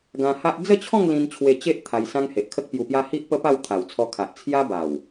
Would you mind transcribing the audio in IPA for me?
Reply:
ɡ ã˧ h a˦ ʔ d͡z ə˥˧ t͡ɕʰ ɔ̃˥˧ ŋ l ĩ˧ n t͡ɕʰ w e˧ t͡ɕ e˦ ʔ t̪ʰ a˧ j s ã˦ ŋ h e˨ ʔ kʰ ə˦ k̚ p j u˧ p j a˦ h i˦ ʔ p ə˦ p a˥˧ w t̪ʰ a˨˩ w t͡sʰ ɔ˧ kʰ a˨ ʔ t͡sʰ j a˦ b a˨˩ w

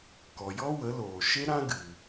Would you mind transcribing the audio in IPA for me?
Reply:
k ɔ˨ j ɔ˦ w ə˨˦ l oː˨ ʃ e˦ ɾ ã˦ ɡ ɨ˨

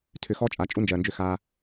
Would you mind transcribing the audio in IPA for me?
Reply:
tʰ ʏ˨ x ɔ˦ t͡ʃʼ a˨ t͡ʃʼ u˦ n d͡ʒ ɜː˨ n d͡ʒ ʏ˦˨ x aː˦

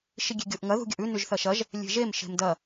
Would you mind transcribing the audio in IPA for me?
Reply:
ʃ i ɡʲ e̤ ɡʲ o ʔ ŋ ɐ ð ṳ ɡʲ ɐ ʔ ʉ n ʉ ʒ θ ɐ ʃ ɐ ʒ | lʲ e̤ ʒ e m ʃ e̤ m d ɐ

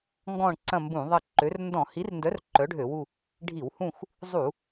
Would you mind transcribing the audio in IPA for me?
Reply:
ŋ ɡ ɔ̃˦˨ ɳ ǀ ɐ̃˦˨ m b ũ˧˩˧ ðˤ ɐ˦˨ ǃ ø˨˥ r n d ɔ̃˧˩˧ h i˨˥ r n d œ˨˥ r ǃ œ˨˥ ɖʱ ø˧˩˧ w u˦˨ | ɖʱ i˧˩˧ w h ũ˦˨ x | zˤ u˧˩˧

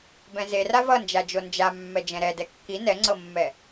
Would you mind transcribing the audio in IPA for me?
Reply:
b ɛ̃ z e r a v ʌ n d͡ʒ a d͡ʒ o n d͡ʒ a mː ɛ d͡ʒ ɛ̃ ɾ ɛ d ɛ kː i n ɛ ŋ͡ǀ ɤ mː ɛ

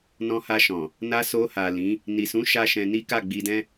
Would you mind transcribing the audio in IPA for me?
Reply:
n ɔ̃˧ h a˧ ʃ ɔ̃˨ | n a˧ s o˧ h a˨ l ĩ˨˦ | n i˨ s ũ˨˦ ʃ a˦ ʃ ɛ̃˧ n i˦ k a˦˨ ɡ͡b i˧ d ɛ̃˦

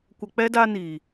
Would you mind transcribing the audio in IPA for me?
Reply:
kʷ ə˧ k͡p ɛ˦ d a˧ n iː˨

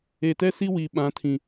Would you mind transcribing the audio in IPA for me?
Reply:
e˨ t ɛ˦ s i˦ w i˨ ɓ ã˨˦ tʰ ĩ˨

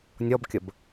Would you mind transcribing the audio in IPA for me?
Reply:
nʲ ɔ b kʲ ə b

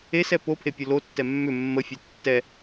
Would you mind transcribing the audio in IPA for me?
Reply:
e s ɛ p o pʰ e pʲ ʊ l o tː ɛ mː ʏ mː ə fʲ ɛ tː ɛ

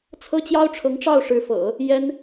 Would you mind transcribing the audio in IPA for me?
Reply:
t͡sʰ ɤ˥ t͡ɕ j ɑ˥ ʊ̯ ʈ͡ʂʰ ɤ˧˥ ŋ ʈ͡ʂ ɑ˥˩ ʊ̯ ʂ ɻ̩˧˥ f ɤ̰˨˩˦ | j ɛ˥ n

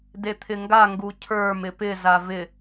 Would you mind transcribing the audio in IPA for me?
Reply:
d e t̪ʰ ɪ ŋ ɡ a ŋ ɡ u cʰ ə˞ m ɪ p ɪ z a v ɪ

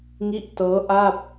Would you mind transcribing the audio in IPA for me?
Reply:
ŋ i˦˥ ʔ t ɤː˦˥ ʔ a˥˩ p̚

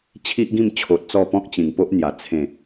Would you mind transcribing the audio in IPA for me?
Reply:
t͡ɕʰ i˦ ʔ ɡ ĩ˥˧ m t͡ɕʰ o˨ t̚ t͡s ɔ˥˧ p ɔ̃˦ k̚ t͡ɕ ĩ˨˩ ŋ p o˦ ʔ n̪ j a˨˩ t͡sʰ ẽ˨˩

